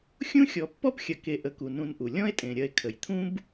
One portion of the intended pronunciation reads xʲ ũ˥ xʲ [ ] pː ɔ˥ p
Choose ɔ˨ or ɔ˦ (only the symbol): ɔ˨